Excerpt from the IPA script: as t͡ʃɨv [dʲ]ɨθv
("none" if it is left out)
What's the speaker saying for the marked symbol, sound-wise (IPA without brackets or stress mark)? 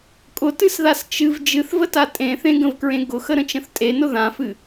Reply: d͡ʒ